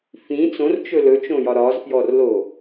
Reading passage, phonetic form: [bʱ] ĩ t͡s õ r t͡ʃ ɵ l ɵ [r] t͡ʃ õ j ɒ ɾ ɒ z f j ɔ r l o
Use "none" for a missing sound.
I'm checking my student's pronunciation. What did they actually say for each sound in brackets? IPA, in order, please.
f, none

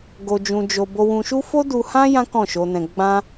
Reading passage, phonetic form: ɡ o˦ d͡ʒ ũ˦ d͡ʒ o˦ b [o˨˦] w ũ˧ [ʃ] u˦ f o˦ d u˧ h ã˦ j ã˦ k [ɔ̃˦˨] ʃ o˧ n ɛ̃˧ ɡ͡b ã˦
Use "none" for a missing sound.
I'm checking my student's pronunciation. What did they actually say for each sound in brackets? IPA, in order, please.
o˧, ʃ, ɔ̃˦˨

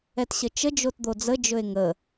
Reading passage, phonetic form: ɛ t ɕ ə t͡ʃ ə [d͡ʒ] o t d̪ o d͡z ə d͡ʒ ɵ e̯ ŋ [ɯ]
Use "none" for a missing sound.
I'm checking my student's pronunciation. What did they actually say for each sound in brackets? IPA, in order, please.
d͡ʒ, ə

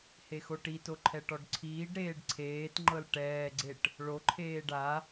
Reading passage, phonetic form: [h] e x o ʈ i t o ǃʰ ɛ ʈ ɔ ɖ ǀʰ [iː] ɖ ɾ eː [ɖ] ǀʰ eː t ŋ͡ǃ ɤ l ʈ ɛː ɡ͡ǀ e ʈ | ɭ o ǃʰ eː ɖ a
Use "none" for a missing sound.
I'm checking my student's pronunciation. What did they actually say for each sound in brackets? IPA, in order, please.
h, iː, ɖ

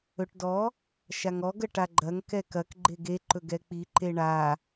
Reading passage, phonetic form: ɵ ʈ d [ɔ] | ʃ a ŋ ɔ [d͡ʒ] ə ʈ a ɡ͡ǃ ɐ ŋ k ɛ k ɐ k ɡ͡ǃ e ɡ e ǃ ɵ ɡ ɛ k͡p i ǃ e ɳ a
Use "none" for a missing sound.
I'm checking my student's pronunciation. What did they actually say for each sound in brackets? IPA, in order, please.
ɔ, ɡ

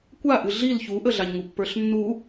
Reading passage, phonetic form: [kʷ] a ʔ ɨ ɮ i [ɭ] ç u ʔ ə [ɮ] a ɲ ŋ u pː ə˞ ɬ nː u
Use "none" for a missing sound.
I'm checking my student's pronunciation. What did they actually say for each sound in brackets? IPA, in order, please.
kʷ, l, ɮ

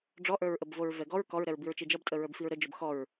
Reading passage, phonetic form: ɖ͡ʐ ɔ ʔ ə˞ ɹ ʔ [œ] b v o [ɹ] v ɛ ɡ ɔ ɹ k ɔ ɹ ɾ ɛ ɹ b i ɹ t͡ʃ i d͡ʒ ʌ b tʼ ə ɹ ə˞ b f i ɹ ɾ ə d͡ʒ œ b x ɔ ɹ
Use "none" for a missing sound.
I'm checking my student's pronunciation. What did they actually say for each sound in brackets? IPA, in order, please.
ə, ɹ

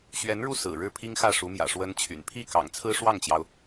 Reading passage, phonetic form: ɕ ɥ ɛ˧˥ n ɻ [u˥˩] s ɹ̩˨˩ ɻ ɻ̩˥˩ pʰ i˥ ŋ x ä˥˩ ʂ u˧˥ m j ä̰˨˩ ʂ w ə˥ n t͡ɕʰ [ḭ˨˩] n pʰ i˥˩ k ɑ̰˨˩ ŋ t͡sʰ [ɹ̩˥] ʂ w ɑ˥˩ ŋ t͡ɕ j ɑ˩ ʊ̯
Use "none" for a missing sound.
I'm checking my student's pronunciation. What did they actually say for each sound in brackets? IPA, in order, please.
u˥˩, y̰˨˩, ɹ̩˥

